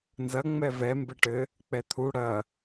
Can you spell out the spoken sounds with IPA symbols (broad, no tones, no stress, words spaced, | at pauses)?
nzɐ ŋ͡mɛvɛ mbɘʈɘ | k͡pɛt̪ʰu ɽɐ